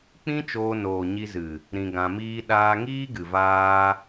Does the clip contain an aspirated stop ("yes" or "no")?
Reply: no